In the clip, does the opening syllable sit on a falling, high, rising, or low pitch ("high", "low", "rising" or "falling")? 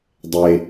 high